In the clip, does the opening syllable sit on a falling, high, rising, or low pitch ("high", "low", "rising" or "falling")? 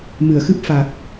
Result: low